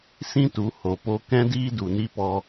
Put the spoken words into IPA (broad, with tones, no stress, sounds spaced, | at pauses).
s ĩ˦ t u˨˦ h o˨ p o˧ k ɛ̃˦ d iː˦ d u˨ n i˦ p ɔ˧